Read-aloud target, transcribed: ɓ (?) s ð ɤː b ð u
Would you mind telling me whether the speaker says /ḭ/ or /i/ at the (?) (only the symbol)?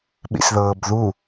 ḭ